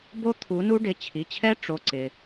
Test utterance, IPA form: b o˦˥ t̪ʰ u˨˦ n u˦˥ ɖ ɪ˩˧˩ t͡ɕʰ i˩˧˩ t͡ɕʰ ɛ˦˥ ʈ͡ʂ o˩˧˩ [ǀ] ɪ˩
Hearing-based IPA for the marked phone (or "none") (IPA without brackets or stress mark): ǀ